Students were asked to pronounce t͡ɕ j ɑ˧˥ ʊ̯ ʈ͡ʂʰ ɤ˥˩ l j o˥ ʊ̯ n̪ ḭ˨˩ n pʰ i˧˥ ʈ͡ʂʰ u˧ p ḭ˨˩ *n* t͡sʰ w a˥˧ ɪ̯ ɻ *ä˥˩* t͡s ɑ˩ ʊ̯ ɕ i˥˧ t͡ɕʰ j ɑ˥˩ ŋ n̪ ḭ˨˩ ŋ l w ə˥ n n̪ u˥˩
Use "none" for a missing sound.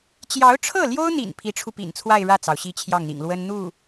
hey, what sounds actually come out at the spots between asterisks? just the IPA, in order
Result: n, ä˥˩

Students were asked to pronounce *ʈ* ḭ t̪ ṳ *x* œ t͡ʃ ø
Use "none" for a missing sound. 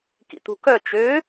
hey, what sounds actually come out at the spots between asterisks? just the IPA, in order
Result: k, k

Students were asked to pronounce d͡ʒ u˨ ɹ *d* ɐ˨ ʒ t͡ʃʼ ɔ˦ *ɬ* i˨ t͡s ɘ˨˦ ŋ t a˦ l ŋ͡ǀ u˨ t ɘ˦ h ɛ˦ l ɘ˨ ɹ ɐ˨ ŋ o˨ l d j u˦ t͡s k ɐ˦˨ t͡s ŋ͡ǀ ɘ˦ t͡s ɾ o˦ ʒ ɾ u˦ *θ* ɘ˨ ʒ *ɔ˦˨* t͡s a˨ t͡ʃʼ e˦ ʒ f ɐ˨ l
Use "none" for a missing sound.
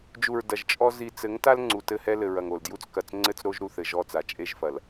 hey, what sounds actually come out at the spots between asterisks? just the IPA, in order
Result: d, z, θ, ɔ˦˨

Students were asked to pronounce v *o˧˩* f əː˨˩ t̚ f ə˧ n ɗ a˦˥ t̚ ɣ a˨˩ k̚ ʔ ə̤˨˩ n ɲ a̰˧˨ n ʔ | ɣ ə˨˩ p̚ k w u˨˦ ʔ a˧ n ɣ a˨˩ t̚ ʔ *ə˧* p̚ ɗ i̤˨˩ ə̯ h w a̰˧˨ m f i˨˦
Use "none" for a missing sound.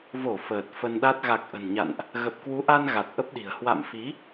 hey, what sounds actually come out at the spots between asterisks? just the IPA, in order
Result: o˧˩, ə˦˥

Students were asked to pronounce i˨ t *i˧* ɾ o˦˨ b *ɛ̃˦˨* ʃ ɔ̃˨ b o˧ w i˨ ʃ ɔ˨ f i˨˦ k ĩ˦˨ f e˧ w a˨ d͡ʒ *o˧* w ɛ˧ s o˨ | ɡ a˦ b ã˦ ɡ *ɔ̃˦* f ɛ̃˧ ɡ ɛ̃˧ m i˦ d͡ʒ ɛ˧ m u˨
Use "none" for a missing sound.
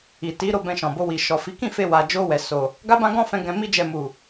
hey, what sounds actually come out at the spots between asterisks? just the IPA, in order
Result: i˨˦, ɛ̃˧, o˧, ɔ̃˦

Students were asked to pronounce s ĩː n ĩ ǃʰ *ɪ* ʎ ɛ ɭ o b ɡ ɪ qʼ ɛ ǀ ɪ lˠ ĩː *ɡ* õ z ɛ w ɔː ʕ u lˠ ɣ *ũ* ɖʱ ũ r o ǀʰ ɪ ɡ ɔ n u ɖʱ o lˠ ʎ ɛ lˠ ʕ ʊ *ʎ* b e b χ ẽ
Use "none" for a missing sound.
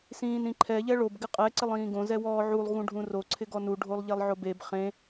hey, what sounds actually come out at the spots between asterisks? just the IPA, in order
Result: ɛ, ɡ, ũ, none

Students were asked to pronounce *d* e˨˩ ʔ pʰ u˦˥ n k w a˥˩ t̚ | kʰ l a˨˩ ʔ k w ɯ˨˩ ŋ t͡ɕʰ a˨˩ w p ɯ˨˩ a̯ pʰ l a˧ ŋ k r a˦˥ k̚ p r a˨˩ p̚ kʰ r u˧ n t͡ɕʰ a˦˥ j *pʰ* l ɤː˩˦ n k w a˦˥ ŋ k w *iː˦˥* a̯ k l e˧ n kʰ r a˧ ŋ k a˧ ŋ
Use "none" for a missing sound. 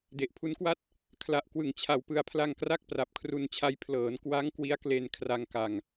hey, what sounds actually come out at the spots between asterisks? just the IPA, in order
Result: d, pʰ, i˦˥

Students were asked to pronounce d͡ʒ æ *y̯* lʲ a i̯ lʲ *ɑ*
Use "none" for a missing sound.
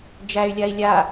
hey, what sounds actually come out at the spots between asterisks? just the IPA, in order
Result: y̯, a

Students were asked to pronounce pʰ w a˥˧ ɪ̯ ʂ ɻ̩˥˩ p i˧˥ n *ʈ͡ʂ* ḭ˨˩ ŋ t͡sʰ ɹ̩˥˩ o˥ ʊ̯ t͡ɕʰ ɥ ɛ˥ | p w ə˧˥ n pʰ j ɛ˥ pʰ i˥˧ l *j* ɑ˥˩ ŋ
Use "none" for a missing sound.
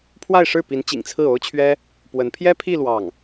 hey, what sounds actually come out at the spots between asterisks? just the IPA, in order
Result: t͡ɕ, w

